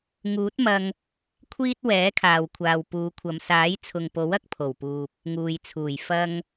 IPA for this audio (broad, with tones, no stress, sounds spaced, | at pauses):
ŋ uː˨˥ t̚ m ɐ˧ ŋ | kʷʰ iː˥ t̚ w ɛː˨˥ kʰ aː˨ w kʷʰ aː˨ w p uː˨˧ kʷʰ ɐ˨˧ m s aː˨˥ j t͡sʰ ʊ˨ ŋ p o˨˥ w ɐ˥ k̚ pʰ o˨˩ w p uː˨ p̚ | ŋ uː˨ j t͡sʰ uː˨˩ j f ɐ˧ ŋ